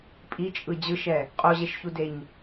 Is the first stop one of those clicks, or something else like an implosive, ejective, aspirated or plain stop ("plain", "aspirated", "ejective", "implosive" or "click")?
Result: ejective